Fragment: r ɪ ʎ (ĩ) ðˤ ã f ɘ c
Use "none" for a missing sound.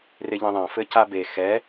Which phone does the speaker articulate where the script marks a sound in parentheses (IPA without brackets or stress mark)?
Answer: ĩ